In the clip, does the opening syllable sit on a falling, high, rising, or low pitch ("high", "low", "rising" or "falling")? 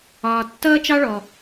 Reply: low